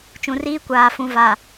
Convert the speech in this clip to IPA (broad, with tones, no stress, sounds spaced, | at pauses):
t͡ʃ ũ˨ r iː˦ kʷ aː˨ f ũ˨ v a˨